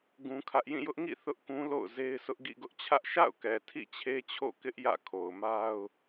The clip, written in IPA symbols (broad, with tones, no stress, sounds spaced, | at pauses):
ɡ ũ˦ kʰ ä˦ ʔ j ĩ˦˨ j ʊ˦ ʔ ŋ ḭ˦˨ θ ʊ˦ ʔ k ũ˦ l o̰˦˨ ʊ̯ z e˦ ɪ̯ s ʊ˦ ʔ ɡ ḭ˦˨ ɡ ʊ˦ ʔ t͡ɕʰ ä˦ ʔ ʃ a̰˦˨ ʊ̯ k ɛ˨ tʰ ḭ˦˨ t͡ɕʰ e˦ t͡ɕʰ o̰˦˨ k ɪ˦ ʔ j ä̰˦˨ kʰ o˨ ʊ̯ m a˦ ʊ̯